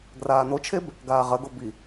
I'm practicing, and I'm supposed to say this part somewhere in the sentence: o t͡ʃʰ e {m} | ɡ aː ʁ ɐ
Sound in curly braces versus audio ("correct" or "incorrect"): incorrect